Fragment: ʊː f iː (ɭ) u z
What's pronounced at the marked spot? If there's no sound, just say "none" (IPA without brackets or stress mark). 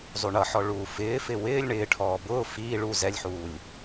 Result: ɭ